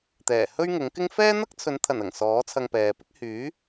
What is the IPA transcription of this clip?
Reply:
t̪ɛː˨˩hɵ˥ɥŋʊ˨˥ŋkɪ˥ŋ fɛː˥n̪ɐ˥k̚t͡sʰɵ˨˥nt̪ʰɐ˨˩n ɐ˨˩ŋsɔː˨˥ t͡sʰɐ˧ŋpɛː˨pɪ˥k̚ hyː˨˥

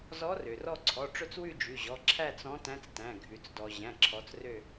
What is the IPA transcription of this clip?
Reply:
zɔ˧˥rø˩rɔ˦˨ǀʰɔ˩˧˩ ʈ͡ʂɵ˦˨t͡swʉ˦˨ d͡ʒʉ˩˧˩ʑɔ˩˧˩ ǁʰæ˦˨t͡s ɔ̃˧˥tæ̃˧˥t͡stæ̃˩˧˩ ɡʱʉ˩t͡sdɔ˩ ʑæ̃˩˧˩ǁʰɔ˩˧t͡srø˦˨

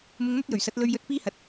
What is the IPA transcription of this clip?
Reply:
mʊ˧ŋn̪ɐ˥t̚jɵ˨˩ɥsɐ˨˥t̚ lɵ˧ɥjɵ˧t̚ piː˥hɐ˨˥t̚

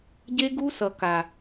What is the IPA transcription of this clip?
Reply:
ɟe˦ɡu˦sʌ˨ ka˨

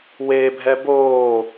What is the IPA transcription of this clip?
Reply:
webʱɛ boː

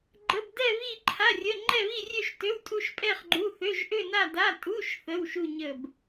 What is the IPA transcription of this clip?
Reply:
ɡ͡ǃə˧˥˧bdɛ˥˧βi˥˧ ǃʰa˧˥˧rʲə˧˥˧ ŋ͡ǃɛ˥˧βi˥˧rʲø˥˧ʃtø˧˥˧w tʼu˥˧ʃpʼɛ˥˧χɡ͡ǃu˧˥˧θø˧˥˧ʒ ʔø˥˧na˥˧da˧˥˧ tʼu˧˥˧ʃ θə˧˥˧w ʃu˥˧ ɲə˥˧b

